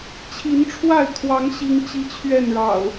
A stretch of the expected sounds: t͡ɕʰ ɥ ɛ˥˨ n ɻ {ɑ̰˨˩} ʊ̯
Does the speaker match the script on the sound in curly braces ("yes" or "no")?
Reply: yes